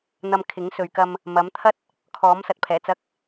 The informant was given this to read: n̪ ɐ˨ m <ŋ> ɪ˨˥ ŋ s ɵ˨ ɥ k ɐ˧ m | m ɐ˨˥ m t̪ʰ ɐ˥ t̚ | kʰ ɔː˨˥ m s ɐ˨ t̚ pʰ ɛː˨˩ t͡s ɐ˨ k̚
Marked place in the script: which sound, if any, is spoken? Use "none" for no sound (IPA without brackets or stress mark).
kʰ